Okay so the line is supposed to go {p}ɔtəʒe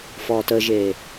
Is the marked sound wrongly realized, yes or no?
yes